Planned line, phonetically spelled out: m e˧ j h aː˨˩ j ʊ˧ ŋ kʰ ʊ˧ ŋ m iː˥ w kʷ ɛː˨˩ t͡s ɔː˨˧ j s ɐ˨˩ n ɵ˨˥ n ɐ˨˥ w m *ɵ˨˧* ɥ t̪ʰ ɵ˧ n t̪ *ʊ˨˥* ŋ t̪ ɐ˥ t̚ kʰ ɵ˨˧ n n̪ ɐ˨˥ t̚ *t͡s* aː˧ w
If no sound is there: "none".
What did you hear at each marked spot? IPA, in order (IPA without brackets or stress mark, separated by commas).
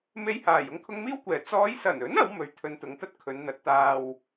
ɵ˨˧, ʊ˨˧, t̪